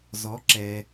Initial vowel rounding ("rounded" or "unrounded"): rounded